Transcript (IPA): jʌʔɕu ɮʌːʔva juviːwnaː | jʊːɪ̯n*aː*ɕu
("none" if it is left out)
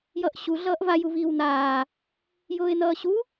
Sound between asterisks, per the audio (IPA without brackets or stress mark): ʌː